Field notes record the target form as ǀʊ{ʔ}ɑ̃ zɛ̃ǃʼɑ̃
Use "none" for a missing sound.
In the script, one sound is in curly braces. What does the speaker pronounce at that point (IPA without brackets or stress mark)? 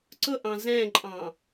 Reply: ʔ